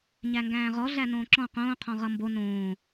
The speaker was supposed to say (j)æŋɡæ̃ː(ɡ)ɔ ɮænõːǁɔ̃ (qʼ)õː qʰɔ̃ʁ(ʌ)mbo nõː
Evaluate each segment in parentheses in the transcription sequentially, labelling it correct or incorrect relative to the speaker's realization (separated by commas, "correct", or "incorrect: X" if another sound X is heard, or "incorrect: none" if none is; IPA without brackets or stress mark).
incorrect: ɲ, incorrect: ʁ, incorrect: q, correct